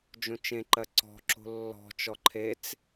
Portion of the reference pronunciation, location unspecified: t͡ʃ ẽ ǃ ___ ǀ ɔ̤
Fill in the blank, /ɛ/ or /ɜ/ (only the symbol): ɜ